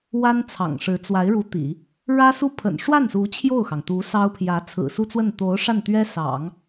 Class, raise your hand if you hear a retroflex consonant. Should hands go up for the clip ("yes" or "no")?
yes